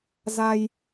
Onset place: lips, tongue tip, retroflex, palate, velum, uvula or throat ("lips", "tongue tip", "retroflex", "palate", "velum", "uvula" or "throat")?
tongue tip